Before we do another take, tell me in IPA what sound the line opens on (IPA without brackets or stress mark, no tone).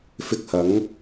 f